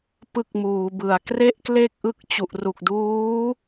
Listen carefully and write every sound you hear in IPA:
p ɯ˥˩ k̚ m uː˩˦ b ɯ˩˦ a̯ k r e˥˩ ʔ k l e˥˩ k̚ ʔ ɯ˦˥ k̚ t͡ɕ u˨˩ ʔ r u˨˩ k̚ d uː˦˥

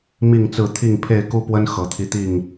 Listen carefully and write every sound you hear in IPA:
m i˥˨ ŋ t͡s ɹ̩˥˨ t̪ʰ i˥˨ ŋ pʰ e˥˨ ɪ̯ k u˦ p w ə˦ n x ɤ˨˦ t̪ʰ i˧ t̪ i˥˨ ŋ

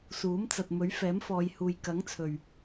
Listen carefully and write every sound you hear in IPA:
s uː˨˥ m t͡s ɐ˨ t̚ m ɵ˨˥ ɥ f ɛː˨˥ m f ɔː˨˧ j h uː˨ j k ɐ˨˥ ŋ t͡sʰ ɵ˨ ɥ

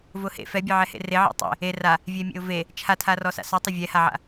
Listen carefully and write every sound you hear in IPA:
v ʊ h ḛ f ɛ bʲ ɛ ʕ ɛ h ḛ r e ʕ ḛ tˤ ḛ | e r a | vʲ ɛ mʲ ḛ ʊ̯ v e | t͡ʃʰ a tʰ a r ɔ s a̰ s ɔ tˤ ʊ vʲ ɛ h a ʕ a̰

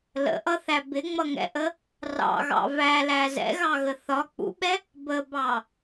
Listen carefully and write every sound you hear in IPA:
l ə̰ ʔ ʌ θ æ b ɪ ŋ͡m ʌ ŋ ɛ̰ ʔ ə | r ɑ̰ ɣ ɑ̰ v æ l æ z ɛ̰ ɣ ɑ ɣ ə θ ɒ k͡p ṵ ɓ ɛ | b ə b ɑ

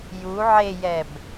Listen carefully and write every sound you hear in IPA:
j u ʕ e j ɛ b

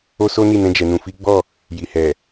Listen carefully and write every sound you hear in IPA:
o˦ s o˦ n i˦˨ n ɛ̃˧ d͡ʒ ɛ˨ n ũ˨ f i˨˦ ɡ͡b ɔ˦˨ | j i˨ h ɛ˨

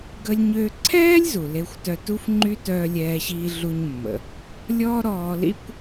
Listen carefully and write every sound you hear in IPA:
ɡ ə˧ lʲ ɲ ø˧ ǀʰ ɛː˥ lʲ z u˩ l e˧ xʷ t œ˧ t u˥ f ŋ͡ǃ y˥ t œː˧ lʲ ɛː˧ ɕ iː˧ ɮ u˧ ɲ mː ə̰˩ | lʲ ɔː˥ ɾ ɔː˧ l ḭ˥ kʷ

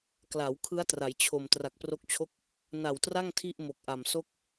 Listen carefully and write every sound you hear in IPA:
k l a˩˦ w kʰ ɯ˦˥ a̯ t r a˩˦ j t͡ɕʰ o˨˩ m t r a˨˩ k̚ p r o˦˥ k̚ t͡ɕʰ o˥˩ k̚ | n a˨˩ w t r a˥˩ ŋ tʰ i˥˩ ʔ m o˨˩ k̚ ʔ a˨˩ m s o˥˩ k̚

